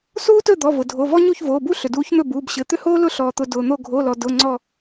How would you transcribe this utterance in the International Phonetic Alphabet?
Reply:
s uː˥ t ɵ˥˩ d̪ ɔ˩˧˩ v ʊ˩ dʱ o˩˧˩ v ɔ˥ ɲ u˥˩ ç v oː˩˧˩ b u˥ ɬ ʏ˩ d uː˨˥ ç n̪ ɵ˥˩ b uː˩˧˩ b ɕ ɘ˩˧˩ t̪ ʏ˥ h oː˥ l ʊ˥ ɬ ɔː˩ t̪ ʊ˩˧˩ d ʊː˩ n̪ o˧˩ ɡʱ o˩˧˩ l ɔ˩ d ʊ˩˧˩ ŋ͡ǀ ɔ˧˩

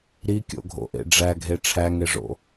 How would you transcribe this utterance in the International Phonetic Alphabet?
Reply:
ɾ i kʲ o̰ ɡʱ o̰ ʔ ḛ ɖ͡ʐ æ ɡʱ e ʈ͡ʂʰ æ ŋ e ʐ o̰

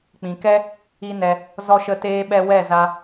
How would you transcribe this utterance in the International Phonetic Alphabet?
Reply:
k͡p ĩ˨ k ɛ˦ | i˦ n ɛ˧ | z ɔ˦ ʃ ə˦ t eː˦ ɓ ɛ˦ w ɛ˦˨ z a˧

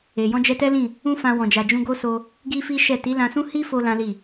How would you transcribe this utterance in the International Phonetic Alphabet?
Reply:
e˨ j ɔ̃˧ d͡ʒ ɛ˧ t ɛ˦ l ĩ˦˨ | ũ˦ f ã˧ w ɔ̃˨ d͡ʒ a˨ d͡ʒ ũ˧ ɡ o˦ s o˧ | ɡ i˦ f i˦ ʃ ɛ˦˨ t i˨˦ l ã˧ s ũ˦ h i˦ f o˦ l ã˦ l i˦˨

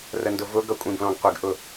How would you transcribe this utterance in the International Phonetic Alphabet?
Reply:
r ə n d ʊ v ʊ ɡ ʌ kʷʼ ĩ b l ɔ̃ ɡ qʷ ɪ ɡ ʔ ʊ

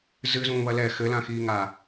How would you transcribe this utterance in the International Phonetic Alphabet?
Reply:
z ɨ z ũː β ɐ l ɛ x ɘ l ã x iː ŋ aː

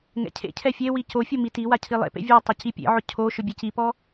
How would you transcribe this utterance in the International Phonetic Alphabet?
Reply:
ŋ ɛ̰ cʰ ḛ cʰ ɛ fʲ e w i c o fʲ o m i t i w a cʰ i lˠ ḛ p ḛ vʲ a tˤ ɪ c i pʲ ḛ ʕ ʊ cʰ o ʃ ʊ bʲ e c i p ɔ

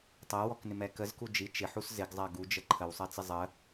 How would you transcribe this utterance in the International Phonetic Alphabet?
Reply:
tˤ ɜ w ɔ k n ɪ m ɛ k ə z k u d͡ʒ i t͡ʃ ɪ ħ u s z ɪ ɡ zˤ ɜ ɡ u d͡ʒ ə ǃʰ ə w sˤ ɜ t͡s ɪ zˤ ə

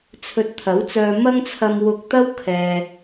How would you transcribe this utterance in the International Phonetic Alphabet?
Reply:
t͡sʰ ɵ˧ t̚ t̪ʰ ɐ˨˥ w t͡s œː˧ m ɐ˥ ŋ t͡sʰ ɐ˧ m w ʊ˧ k̚ t̪ ɐ˥ w kʰ ɛː˨

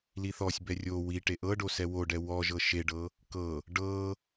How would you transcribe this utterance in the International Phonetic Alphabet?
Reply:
l i θ ɔ sʲ b ɛ rʲ o w i ʈ e ʔ ɤ ɖ o s ɛ w o ɖ ɛ w ɔ ʒ ɤ ʃ e ɖ ɤ | k ɤ | ɖ ɤ

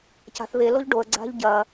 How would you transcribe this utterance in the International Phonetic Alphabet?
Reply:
c a̤ θ β e l o ʎ ɖ o ə̯ ɡ͡ǀ a̤ ʎ ɟ ɐ

